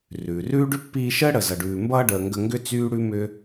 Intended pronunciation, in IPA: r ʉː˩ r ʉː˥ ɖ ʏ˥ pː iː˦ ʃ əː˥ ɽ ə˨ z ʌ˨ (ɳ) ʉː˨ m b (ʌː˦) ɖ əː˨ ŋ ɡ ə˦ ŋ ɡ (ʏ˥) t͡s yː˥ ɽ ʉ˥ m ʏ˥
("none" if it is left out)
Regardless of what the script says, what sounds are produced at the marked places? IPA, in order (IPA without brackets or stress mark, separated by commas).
ɖ, ʌː˦, ʏ˥